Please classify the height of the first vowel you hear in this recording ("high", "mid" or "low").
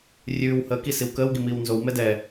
high